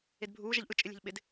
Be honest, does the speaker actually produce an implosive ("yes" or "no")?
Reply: yes